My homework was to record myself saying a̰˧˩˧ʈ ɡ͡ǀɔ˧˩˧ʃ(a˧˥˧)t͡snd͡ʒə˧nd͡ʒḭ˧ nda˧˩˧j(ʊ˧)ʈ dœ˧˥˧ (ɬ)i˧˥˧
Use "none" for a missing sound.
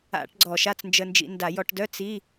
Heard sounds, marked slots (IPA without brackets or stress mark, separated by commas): a˧˥˧, ɔ˧, t͡s